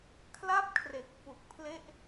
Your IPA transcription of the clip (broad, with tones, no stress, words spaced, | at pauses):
kʰla˥˩p̚kʰre˨˩k̚ fu˨˩k̚ pʰle˥˩ʔ